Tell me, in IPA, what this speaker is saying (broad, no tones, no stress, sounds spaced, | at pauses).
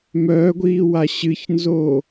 m œː ɡʷ iː w a ɕ ɨ ç n z oː